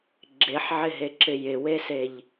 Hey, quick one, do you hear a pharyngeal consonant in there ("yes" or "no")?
yes